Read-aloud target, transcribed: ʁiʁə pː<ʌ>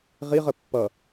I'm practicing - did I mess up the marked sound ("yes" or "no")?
no